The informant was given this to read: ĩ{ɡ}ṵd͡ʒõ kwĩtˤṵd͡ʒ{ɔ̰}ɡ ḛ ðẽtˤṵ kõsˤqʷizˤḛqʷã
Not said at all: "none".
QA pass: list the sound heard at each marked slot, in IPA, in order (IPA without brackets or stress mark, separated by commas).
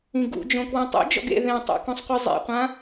ɡ, ɔ̰